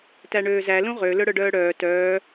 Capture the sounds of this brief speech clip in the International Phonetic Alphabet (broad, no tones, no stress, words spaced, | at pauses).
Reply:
tæɳøːzæ lũʁø lɵɽœɖœːɽœː tœː